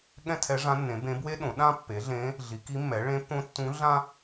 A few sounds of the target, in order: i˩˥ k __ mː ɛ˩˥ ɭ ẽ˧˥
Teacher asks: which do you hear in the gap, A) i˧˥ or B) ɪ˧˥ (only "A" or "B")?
A